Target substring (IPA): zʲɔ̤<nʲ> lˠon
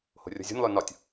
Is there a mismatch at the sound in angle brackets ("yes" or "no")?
no